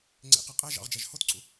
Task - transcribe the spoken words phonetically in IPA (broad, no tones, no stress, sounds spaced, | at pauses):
ŋ͡ǀ ḛ q ɯ qʼ æ ʒ ɑ̰ ʁ d͡ʒ æ ʒ h o t ǀʰ ṵ